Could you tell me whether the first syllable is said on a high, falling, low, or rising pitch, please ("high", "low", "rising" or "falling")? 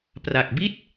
low